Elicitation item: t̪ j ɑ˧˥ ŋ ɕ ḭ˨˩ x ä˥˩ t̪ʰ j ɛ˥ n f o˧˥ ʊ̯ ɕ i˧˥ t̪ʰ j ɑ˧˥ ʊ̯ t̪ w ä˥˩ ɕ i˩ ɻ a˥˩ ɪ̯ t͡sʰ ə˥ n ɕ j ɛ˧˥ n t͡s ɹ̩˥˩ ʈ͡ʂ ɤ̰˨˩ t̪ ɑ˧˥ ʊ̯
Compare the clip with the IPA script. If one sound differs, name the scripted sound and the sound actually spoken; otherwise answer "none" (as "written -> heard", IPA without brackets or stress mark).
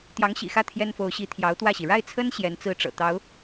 none